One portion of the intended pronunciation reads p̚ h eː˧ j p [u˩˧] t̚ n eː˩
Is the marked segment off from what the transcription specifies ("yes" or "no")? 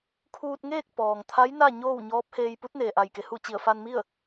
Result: yes